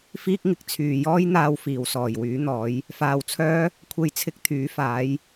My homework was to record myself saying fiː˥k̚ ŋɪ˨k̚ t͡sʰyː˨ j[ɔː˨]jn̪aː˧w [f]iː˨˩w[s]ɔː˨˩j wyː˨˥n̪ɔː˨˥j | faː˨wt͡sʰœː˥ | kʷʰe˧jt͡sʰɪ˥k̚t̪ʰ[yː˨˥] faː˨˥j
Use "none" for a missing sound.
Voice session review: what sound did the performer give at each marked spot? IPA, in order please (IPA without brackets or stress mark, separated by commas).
ɔː˥, f, s, yː˨˥